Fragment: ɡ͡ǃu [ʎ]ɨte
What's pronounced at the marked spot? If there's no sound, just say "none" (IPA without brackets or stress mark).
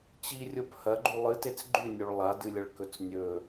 lˠ